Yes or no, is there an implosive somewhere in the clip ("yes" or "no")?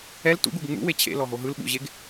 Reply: yes